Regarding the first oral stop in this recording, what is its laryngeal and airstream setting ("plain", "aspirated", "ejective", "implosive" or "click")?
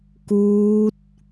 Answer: plain